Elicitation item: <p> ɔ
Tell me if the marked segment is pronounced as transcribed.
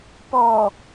yes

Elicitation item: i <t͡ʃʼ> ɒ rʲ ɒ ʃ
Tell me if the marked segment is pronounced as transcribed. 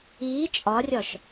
yes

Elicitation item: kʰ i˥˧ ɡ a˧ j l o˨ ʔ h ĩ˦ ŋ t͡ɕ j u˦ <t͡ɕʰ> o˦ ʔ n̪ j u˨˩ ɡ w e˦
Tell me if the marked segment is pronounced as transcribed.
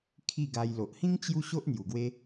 no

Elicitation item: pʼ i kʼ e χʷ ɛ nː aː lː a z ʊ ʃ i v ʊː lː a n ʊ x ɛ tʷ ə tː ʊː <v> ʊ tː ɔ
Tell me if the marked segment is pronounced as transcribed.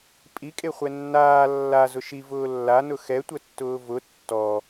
yes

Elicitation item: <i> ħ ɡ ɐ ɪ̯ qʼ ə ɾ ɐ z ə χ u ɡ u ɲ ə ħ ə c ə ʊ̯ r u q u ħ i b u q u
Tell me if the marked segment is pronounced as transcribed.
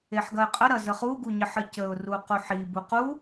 no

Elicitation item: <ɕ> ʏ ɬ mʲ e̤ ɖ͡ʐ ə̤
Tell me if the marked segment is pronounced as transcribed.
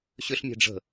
yes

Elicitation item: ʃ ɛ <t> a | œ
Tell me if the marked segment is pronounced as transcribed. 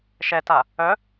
yes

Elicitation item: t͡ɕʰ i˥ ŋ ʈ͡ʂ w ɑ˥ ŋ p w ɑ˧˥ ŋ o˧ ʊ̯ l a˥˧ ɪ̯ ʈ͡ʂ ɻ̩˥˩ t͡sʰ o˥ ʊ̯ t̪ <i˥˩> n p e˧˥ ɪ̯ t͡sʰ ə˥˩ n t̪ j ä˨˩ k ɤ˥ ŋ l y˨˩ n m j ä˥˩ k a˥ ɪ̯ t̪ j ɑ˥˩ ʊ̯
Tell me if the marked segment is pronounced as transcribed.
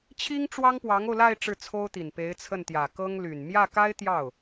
no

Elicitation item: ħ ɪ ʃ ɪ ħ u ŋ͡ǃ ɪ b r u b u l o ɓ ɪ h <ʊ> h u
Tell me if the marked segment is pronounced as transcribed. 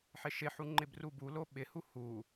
no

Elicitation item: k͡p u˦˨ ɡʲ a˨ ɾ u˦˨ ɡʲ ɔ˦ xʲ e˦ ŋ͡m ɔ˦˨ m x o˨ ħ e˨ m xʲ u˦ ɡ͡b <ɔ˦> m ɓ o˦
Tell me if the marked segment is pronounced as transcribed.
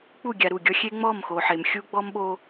yes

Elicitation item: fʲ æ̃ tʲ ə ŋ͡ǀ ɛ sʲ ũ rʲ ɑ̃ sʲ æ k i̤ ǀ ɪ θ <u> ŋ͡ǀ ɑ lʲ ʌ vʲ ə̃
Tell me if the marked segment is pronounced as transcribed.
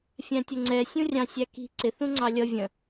no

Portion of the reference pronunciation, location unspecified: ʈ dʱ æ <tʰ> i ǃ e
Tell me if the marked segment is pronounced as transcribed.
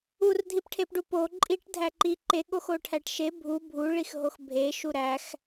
no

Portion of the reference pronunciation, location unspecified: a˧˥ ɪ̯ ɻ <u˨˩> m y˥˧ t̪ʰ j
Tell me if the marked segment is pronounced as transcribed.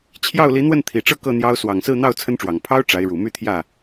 yes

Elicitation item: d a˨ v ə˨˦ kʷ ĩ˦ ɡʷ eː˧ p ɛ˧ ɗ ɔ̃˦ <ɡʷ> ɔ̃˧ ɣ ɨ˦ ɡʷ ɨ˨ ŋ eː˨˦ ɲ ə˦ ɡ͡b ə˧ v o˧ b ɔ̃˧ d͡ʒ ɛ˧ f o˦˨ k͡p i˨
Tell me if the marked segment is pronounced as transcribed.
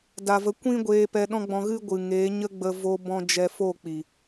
no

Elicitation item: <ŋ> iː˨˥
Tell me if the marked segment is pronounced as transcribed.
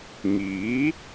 yes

